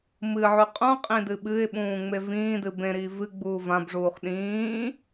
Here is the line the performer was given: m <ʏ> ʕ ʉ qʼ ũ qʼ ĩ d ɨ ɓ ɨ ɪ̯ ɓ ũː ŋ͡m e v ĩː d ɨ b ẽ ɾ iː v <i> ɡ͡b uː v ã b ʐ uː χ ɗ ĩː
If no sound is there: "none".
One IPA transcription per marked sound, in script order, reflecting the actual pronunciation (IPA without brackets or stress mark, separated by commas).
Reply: ɨ, ɨ